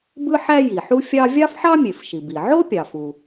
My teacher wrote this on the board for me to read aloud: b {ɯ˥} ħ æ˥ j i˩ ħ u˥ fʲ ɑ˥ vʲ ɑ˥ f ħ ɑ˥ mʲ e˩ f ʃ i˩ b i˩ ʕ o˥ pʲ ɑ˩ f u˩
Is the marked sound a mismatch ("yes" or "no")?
no